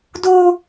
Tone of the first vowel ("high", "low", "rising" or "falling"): high